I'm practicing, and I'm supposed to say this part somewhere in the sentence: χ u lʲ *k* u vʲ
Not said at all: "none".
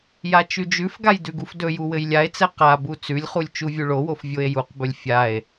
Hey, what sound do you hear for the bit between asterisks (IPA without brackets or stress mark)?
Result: t͡ʃ